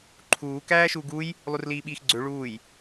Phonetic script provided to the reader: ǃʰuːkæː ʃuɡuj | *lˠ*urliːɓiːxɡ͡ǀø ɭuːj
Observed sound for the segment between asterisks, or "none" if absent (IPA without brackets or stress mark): lˠ